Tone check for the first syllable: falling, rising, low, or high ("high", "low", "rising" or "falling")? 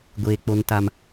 low